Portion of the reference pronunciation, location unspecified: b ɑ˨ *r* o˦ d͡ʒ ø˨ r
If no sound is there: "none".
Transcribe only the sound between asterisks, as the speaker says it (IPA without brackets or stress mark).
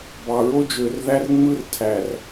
ɹ